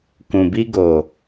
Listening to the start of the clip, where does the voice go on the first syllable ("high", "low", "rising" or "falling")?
low